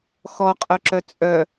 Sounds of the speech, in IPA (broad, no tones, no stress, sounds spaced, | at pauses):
x ɔ qʼ œ ǁ œ t͡sʼ œ